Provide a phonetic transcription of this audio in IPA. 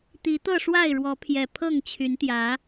t̪ i˨˦ t̪ ɤ˥˨ ʂ w a˥˨ ɪ̯ ɻ w ɔ˨˦ pʰ j ɛ˨˩ pʰ ɤ˥˨ ŋ t͡ɕʰ y˨˦ n t̪ j ä˨˦

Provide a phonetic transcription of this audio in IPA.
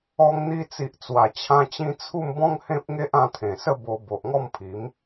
ɔ˧ ŋ n̪ i˧ t͡s i˨ ʔ t͡s w a˨˩ t͡ɕʰ ã˧ t͡ɕ ĩ˧ t͡sʰ u˥˧ m b ɔ̃˦ ŋ h ẽ˦ p̚ ŋ e˦ ʔ ã˧ t̪ʰ ẽ˨˩ s ə˥˧ b o˧ b o˨ ʔ ŋ ɔ˥˧ m pʰ i˨˦ m

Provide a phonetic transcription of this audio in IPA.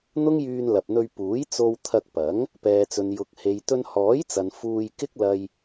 n̪ ʊ˥ ŋ j yː˧ n l ɐ˨ p̚ n̪ ɵ˧ ɥ p uː˨˥ j t͡s o˧ w t̪ʰ ɐ˧ k̚ p ɐ˨˥ ŋ | p ɛː˨ t͡s ɵ˨ n j ʊ˨ k̚ h e˨ j t̪ ɵ˧ n h ɔː˨˥ j t͡s ɐ˨ n f uː˧ j k ɪ˥ k̚ l ɐ˧ j

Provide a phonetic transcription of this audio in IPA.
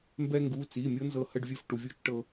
m b ɛ˧ ŋ ɡ u˩˧˩ t͡s i˩˧˩ mʲ ɤ˥ n z ɤ˧˩ h ə˥˨ ɖ vʲ ɵ˥˨ f ʈ u˩˧˩ vʲ u˥˨ t͡ʃ ʈ ɤ˧

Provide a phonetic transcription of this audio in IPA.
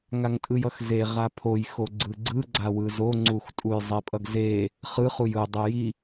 ŋ a ŋ tʼ ɯ j ʌ x z e ʁ a pʰ o j x o ɡ͡ǀ ɯ ɡ͡ǀ ɯ ɡ͡ǀ a w ɯ z o ŋ͡ǀ u x tʼ u j zˤ e pʼ ʌ ɡ z e | χ ɯ χ u j ɯ dˤ e j i

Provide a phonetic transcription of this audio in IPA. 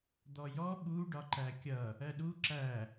d̪ ɔ j ɔ ɓ u ɖ ɒ ǃ æ kʲ ʌ | ɜ ɗ u ǁ æ

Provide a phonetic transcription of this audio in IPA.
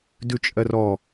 d ʉ t͡ʃʼ ɜ r ɔ

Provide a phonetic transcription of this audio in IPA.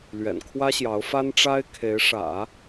l ɥ ɛ̰˨˩ n kʰ w ä˥ ɕ j ɑ˧˥ ʊ̯ f a˥ n ʈ͡ʂ a˥ ɪ̯ kʰ e˧˥ ɪ̯ ʂ ä̰˨˩˦

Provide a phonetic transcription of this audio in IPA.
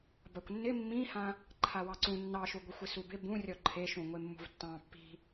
b a kʷ nː ɪ mː ĩ h ã | ǃʰ a w ɑ ǀ ũ nː ɑ ʃ u ɡʷ ɪ xʷ ɪ s u b ɪ b ũ rʲ ɔ ǃʰ e ʃ ũ ŋʷ e mː ṳ v tː ɑ̃ pː i̤

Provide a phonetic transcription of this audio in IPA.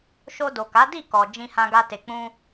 ʃ o˧ d o˨ k a˨˦ d i˦˨ k ɔ˨ d͡ʒ ĩ˧ h ã˧ ɡ a˧ t e˨ k͡p ũ˧

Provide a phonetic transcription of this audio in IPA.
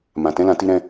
m ã˨ t ɛ̃˨˦ l ã˧ t i˧ ɾ ɛ̃˧

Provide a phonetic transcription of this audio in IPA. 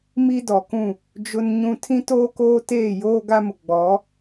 m i˦ d ɔ˨ k ũ˦˨ | d͡ʒ ʊ˦ n ɲ ũ˦ tʰ ĩ˦ t oː˦ k oː˦ t eː˦˨ j oː˦ ɡ a˦ m ʊ˨ ɡ͡b ɔ˨˦

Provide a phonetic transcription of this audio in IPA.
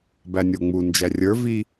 b æ nʲ o ŋ͡m u n d͡ʒ æ rʲ ə˞ v i

